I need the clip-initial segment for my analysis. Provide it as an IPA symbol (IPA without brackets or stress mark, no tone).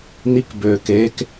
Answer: n̪